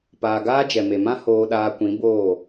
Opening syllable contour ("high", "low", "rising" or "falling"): low